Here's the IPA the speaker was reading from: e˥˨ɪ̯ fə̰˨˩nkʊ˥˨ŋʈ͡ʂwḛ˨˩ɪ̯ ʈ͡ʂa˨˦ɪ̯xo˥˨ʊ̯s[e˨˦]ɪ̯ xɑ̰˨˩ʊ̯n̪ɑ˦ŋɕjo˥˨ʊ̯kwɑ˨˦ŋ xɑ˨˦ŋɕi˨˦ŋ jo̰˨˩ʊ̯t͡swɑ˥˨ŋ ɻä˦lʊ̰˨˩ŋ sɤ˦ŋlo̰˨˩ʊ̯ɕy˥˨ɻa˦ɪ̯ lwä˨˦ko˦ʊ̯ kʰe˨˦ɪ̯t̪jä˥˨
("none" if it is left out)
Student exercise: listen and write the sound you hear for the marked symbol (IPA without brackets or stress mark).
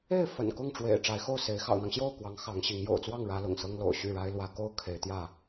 e˨˦